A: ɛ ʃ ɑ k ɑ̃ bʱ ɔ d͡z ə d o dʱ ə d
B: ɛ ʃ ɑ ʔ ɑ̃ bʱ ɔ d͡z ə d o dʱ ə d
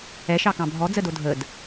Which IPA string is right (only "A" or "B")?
A